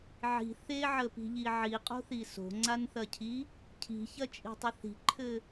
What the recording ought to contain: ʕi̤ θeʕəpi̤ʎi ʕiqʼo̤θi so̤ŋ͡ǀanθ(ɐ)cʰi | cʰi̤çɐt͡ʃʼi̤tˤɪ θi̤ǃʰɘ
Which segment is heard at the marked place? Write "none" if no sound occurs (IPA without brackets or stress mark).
ɐ